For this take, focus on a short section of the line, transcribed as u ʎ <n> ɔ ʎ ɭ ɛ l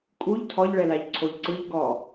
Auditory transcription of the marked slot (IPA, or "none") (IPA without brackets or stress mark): tʰ